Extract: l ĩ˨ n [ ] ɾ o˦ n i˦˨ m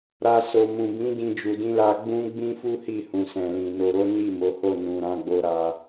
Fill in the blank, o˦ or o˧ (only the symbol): o˧